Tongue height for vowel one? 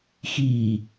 high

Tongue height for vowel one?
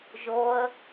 mid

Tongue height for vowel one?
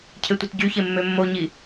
mid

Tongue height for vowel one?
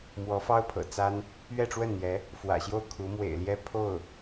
mid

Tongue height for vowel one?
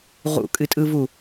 high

